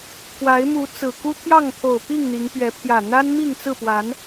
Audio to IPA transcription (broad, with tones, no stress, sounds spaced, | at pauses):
k w a˨˦ ɪ̯ m u˨˦ t͡s ɹ̩˨˩ k u˦ t̪ʰ j ɑ˥˨ ŋ t̪ʰ o˨˩ ʊ̯ p i˥˨ ŋ n̪ i˨˦ ŋ p ɥ ɛ˨˦ pʰ j ä˨˩ n̪ a˦ n m i˥˨ ŋ t͡s ɹ̩˥˨ p w a˨˦ n